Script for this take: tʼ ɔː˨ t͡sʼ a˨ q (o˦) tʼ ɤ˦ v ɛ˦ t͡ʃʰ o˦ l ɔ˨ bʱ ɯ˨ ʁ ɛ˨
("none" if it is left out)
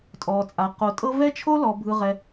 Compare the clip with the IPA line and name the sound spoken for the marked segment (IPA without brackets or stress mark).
o˨